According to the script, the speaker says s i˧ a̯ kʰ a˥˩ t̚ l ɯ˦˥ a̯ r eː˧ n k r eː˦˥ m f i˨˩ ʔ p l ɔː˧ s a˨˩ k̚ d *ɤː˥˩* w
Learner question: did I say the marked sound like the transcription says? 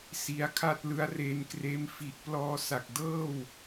yes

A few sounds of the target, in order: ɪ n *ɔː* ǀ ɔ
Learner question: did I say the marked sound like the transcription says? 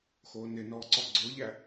yes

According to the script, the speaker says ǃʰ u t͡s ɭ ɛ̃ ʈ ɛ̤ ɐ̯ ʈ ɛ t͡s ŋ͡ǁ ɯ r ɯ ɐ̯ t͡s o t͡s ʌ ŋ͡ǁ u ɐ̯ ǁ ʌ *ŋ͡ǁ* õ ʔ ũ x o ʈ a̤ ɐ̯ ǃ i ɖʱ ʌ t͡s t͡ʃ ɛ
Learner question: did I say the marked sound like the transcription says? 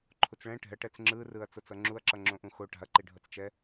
yes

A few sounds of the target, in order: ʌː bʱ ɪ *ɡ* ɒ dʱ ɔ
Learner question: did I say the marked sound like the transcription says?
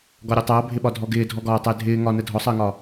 no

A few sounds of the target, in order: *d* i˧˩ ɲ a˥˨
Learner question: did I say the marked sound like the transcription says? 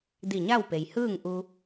yes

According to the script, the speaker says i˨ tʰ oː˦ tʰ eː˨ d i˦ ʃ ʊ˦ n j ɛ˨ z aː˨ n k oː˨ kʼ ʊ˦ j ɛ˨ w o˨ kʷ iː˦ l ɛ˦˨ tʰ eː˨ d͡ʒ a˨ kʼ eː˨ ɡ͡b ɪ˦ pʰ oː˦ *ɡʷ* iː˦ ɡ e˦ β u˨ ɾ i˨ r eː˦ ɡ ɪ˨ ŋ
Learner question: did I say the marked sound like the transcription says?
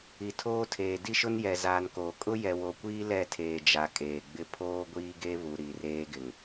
yes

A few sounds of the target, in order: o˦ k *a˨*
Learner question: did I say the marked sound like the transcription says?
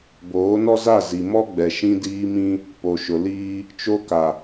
yes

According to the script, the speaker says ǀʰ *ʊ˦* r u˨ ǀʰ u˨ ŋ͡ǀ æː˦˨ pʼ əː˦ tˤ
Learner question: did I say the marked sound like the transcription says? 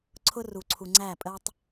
yes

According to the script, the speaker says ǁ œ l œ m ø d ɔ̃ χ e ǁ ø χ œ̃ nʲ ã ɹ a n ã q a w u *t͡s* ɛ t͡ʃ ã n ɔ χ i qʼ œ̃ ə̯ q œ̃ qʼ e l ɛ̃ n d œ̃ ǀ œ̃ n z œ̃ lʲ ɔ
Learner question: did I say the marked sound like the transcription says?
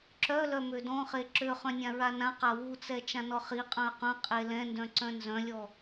yes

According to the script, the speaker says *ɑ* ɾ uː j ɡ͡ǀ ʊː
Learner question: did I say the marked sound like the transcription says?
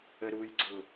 no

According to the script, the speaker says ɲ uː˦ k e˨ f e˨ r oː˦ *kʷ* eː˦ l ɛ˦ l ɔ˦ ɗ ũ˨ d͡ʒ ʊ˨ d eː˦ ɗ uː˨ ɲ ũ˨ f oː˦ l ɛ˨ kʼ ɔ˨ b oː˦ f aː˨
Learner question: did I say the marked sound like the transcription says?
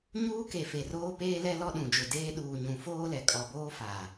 no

